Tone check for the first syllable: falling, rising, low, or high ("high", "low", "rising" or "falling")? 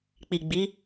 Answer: low